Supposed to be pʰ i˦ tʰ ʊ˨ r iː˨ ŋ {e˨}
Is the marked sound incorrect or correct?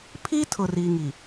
incorrect